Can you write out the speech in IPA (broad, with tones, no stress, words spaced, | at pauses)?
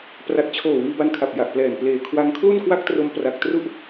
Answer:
pra˨˩t̚t͡ɕʰoː˨˩ wiː˧ba˧nkʰa˨˩p̚ ja˨˩ʔplɛː˨˩n pleː˨˩ kʰwa˧ŋ kʰlu˥˩nkwa˥˩k̚tro˧m pra˨˩k̚tru˥˩ʔ